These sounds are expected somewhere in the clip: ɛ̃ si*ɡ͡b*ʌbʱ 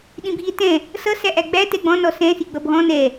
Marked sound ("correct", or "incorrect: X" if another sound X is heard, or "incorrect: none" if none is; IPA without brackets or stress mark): correct